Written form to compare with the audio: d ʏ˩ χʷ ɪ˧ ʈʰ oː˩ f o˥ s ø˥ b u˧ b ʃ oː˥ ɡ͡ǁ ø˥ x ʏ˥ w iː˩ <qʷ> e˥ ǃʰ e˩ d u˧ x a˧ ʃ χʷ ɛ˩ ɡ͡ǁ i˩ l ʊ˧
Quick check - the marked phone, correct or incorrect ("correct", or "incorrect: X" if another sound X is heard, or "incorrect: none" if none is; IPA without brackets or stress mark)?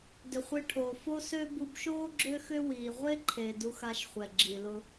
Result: incorrect: ʁʷ